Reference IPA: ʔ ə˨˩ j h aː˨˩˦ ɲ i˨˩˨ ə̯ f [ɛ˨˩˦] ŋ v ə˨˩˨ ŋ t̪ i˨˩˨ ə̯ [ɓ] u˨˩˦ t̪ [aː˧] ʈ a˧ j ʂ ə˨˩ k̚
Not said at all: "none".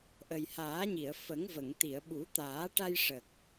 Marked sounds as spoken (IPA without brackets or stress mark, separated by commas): ə˨˩˦, ɓ, aː˨˩˦